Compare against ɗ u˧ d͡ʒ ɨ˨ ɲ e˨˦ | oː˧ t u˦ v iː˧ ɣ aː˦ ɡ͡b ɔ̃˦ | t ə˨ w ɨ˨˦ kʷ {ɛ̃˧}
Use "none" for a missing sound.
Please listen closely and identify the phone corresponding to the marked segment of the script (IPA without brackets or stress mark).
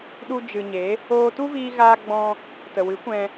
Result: ɛ̃˧